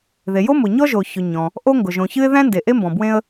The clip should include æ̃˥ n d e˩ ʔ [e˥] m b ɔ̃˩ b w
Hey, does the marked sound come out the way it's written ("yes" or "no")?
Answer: yes